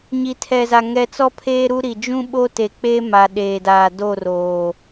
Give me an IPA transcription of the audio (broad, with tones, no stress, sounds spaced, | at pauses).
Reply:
ɲ i˨ tʰ ɛ˨ z a˨ ŋ ɛ˨ t͡s ɔ˦ pʰ eː˦ ɾ u˦ ɾ i˨ d͡ʒ ũ˦ ɓ o˦ t e˨ k͡p e˦ m a˨ ɗ eː˨ d aː˨ d o˦˨ r oː˨